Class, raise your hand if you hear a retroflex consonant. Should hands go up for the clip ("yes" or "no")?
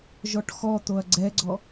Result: yes